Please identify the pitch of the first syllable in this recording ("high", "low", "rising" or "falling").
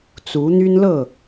rising